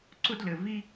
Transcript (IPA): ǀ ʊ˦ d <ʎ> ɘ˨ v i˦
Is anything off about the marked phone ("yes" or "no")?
yes